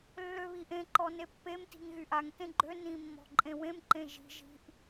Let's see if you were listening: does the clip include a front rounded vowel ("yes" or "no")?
yes